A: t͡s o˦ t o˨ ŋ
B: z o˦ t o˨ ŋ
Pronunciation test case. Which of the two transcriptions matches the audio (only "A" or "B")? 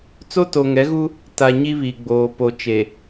A